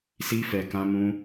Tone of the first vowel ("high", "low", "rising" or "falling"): high